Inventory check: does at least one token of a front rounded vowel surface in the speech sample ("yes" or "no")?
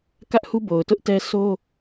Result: no